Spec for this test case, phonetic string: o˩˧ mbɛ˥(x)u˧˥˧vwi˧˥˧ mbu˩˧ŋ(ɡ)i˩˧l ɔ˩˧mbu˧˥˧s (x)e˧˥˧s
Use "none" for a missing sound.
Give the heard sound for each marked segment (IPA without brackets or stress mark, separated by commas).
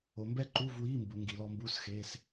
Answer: ǃ, ɡ, x